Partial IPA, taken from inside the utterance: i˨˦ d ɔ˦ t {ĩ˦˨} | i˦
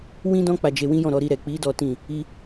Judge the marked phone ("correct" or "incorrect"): correct